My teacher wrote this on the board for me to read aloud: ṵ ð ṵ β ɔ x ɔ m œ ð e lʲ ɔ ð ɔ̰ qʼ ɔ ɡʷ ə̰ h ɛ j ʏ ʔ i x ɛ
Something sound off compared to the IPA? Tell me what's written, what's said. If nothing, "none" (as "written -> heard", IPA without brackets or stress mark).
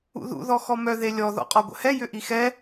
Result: β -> ð